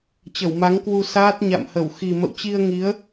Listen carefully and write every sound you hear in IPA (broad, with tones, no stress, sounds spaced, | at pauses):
t͡ɕ ə˧˩ w m a˨˦ ŋ k w u˧ s aː˦˥ t̚ ɲ a̰˧˨ m h ə˧˩ w x i˨˩ m ə̰˧˨ w t͡ɕ i˧ ə̯ ŋ i˨˦ ə̯